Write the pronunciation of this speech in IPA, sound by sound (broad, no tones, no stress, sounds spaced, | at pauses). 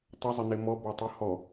tˤ ə zˤ ə n e m ɔ b ɔ tˤ ɨ h ɔ